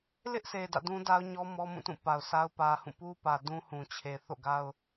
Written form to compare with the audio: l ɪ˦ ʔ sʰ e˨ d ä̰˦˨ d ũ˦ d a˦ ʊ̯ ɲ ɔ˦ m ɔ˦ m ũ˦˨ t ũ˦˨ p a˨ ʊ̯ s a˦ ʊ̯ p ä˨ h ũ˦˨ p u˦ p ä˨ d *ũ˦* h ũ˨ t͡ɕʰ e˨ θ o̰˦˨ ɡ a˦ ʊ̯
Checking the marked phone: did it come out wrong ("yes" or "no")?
no